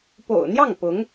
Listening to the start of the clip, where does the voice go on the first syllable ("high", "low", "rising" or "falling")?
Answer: low